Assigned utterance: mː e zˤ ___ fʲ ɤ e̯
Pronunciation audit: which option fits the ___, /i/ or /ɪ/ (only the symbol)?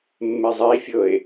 i